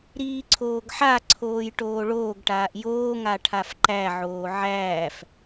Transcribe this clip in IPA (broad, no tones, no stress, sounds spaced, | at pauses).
ɾ iː ǀʰ oː ɡ ħ a ǀʰ oː j ʈ oː ɭ oː ɡ ʈ aː ʔ j oː ŋ a ʈʰ a f ǃ æ ʕ oː ʕ æː f